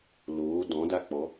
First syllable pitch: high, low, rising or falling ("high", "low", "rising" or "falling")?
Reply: rising